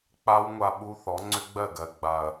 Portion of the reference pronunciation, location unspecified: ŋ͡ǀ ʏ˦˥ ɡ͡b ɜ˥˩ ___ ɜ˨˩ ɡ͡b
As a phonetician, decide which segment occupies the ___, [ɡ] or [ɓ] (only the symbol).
ɡ